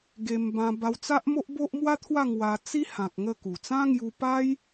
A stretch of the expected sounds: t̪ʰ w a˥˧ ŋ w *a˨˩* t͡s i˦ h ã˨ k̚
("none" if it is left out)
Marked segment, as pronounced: a˧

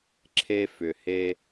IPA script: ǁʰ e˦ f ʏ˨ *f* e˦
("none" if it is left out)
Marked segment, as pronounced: h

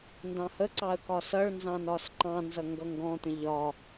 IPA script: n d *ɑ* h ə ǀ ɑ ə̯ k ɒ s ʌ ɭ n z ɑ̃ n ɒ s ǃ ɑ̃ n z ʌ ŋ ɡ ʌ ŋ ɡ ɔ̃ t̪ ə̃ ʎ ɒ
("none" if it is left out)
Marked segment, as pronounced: ɑ̃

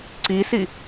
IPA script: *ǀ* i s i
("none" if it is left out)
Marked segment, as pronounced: ǀ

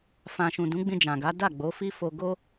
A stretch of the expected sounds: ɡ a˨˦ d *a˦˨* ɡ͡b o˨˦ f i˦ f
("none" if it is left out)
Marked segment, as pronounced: a˦˨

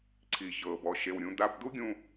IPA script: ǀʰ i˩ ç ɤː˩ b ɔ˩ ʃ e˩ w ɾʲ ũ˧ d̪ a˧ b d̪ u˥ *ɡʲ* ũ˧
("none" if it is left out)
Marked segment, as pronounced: ɡʲ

